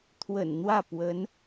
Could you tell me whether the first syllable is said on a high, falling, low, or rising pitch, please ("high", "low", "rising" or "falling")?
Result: low